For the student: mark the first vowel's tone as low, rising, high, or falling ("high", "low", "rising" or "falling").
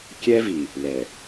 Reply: high